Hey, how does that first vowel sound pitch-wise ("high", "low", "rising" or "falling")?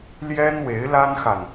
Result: high